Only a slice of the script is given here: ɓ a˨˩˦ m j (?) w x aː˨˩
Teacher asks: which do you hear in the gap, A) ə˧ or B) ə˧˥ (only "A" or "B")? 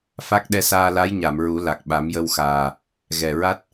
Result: A